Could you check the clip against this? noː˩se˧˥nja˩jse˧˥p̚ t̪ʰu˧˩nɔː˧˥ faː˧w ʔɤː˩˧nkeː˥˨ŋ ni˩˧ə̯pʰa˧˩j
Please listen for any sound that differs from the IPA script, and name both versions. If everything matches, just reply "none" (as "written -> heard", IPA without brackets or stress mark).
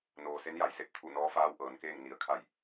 pʰ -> kʰ